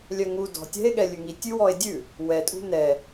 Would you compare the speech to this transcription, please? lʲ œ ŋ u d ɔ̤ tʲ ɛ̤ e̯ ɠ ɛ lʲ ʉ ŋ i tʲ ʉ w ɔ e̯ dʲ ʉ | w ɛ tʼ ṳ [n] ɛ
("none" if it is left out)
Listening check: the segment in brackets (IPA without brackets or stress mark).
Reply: n